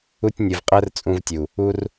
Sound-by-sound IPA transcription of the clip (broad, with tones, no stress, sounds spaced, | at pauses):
u˧ tʲ nʲ ɯ˨ v qʼ æ˦ r t͡sʼ ũ˧ v tʲ u˨ | u˦ r